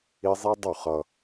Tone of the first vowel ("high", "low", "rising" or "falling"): high